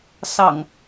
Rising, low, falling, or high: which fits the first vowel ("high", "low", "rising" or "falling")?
low